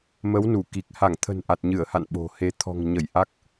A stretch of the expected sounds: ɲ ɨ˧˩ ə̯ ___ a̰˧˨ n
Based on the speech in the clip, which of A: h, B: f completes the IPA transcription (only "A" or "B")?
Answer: A